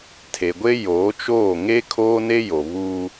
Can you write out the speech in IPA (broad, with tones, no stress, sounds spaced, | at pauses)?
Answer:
tʰ e˨ ɡʷ e˦ j oː˨˦ t͡ʃ oː˦˨ ŋ e˦ kʰ oː˦ n e˦ j o˨ β u˦